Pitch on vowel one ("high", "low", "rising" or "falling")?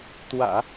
low